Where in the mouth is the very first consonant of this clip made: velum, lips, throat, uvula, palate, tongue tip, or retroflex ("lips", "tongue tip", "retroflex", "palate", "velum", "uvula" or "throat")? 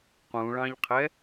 uvula